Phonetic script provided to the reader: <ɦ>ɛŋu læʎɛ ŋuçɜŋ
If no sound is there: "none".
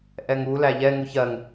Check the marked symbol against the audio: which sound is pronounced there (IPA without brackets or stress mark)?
ʔ